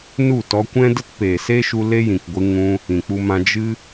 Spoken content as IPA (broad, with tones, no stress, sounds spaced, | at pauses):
n u˦˨ t ɔ˧ kʷ ɛ̃˦ d ə˦ t p eː˨ s eː˦ ʃ u˧ l e˦ j ĩ˨ k ɡʷ ɨ˧ ŋ ũ˧ | ĩ˨ k͡p u˧ m ã˧ d͡ʒ ɨ˦